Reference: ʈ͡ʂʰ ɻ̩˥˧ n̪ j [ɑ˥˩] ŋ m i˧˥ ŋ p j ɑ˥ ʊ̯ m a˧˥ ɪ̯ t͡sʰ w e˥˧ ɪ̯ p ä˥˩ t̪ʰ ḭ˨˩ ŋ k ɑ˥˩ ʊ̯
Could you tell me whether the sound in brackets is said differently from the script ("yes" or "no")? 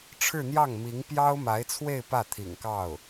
no